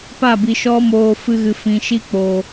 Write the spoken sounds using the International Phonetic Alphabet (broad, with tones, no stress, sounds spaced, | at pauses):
p a˦˨ b i˨ ʃ ɔ˦ m oː˧ f ɨ˧ ɣ ɨ˨ f ĩ˨ ʃ i˦ k͡p o˨